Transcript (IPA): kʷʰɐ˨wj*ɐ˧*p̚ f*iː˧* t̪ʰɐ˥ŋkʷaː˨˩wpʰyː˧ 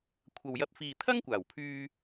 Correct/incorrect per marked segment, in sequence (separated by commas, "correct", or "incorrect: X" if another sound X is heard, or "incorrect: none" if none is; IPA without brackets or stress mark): correct, correct